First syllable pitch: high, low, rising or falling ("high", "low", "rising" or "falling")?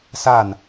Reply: falling